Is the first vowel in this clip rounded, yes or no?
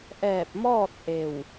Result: no